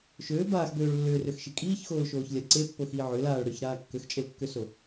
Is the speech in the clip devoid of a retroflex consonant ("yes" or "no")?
no